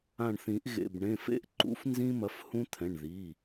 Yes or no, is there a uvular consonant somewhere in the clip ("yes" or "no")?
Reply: no